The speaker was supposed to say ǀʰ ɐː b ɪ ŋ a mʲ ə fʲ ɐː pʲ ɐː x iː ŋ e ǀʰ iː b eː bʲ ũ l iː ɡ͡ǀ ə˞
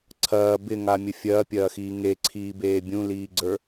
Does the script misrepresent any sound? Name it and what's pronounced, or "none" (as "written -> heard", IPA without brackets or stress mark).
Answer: none